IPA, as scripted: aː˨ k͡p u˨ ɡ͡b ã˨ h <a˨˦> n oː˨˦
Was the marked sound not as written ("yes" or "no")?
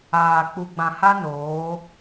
yes